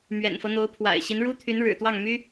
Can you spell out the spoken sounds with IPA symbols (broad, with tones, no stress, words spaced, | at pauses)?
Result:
mɥɛ̰˨˩nfɤ˦n̪o˧˥ʊ̯pʰwa̰˨˩ɪ̯ ɕi˧˥nɻu˥t̪ʰy˧˥n ɻɻ̩˨˩ t̪wɑ˥˩ŋmy˥